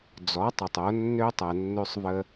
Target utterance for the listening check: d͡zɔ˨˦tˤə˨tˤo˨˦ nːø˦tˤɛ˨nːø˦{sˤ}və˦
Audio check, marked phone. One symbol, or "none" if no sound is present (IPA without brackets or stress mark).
sˤ